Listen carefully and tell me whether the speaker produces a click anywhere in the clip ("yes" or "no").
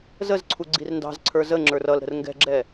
yes